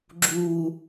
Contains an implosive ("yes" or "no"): no